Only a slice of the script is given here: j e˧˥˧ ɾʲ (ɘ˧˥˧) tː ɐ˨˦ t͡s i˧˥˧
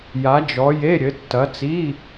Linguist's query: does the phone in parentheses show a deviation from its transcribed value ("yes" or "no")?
yes